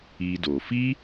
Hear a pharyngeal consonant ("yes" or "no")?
no